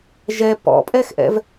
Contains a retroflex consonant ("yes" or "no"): no